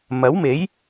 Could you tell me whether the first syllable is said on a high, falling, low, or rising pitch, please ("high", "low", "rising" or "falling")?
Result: rising